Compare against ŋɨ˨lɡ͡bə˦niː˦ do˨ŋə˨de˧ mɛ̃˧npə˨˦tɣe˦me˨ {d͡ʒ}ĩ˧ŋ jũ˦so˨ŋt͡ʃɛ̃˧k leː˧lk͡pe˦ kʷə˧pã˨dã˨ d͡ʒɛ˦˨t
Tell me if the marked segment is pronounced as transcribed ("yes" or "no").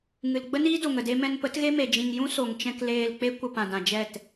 yes